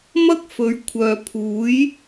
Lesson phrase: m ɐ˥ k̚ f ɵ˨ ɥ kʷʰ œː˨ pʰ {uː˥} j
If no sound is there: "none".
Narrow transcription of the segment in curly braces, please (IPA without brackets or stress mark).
uː˨˥